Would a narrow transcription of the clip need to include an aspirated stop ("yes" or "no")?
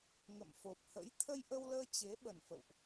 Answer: yes